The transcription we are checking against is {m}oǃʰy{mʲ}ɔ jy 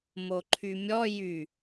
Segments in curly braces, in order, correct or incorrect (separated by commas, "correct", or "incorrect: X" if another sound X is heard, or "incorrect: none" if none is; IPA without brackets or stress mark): correct, correct